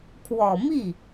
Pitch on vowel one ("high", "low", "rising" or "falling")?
low